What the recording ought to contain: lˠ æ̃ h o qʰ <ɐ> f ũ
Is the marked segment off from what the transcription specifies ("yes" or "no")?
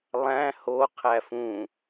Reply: yes